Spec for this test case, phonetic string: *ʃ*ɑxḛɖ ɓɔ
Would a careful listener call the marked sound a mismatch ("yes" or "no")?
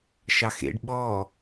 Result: no